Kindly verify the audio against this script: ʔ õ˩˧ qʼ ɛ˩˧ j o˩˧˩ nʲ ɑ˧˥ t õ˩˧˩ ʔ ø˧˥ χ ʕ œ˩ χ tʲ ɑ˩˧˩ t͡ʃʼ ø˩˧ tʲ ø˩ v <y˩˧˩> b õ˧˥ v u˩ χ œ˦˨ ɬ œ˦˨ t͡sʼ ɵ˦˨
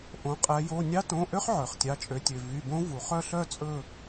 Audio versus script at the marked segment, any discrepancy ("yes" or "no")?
no